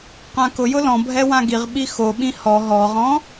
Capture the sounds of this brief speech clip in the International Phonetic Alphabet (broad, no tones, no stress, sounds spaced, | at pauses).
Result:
q ã k ʊ j ʊ l ɔ̃ bʱ ɛ w ã ɡ i ʁ ɓ i x o ɓ ĩ h ɔ ɦ ɔ ʁ ɔ̃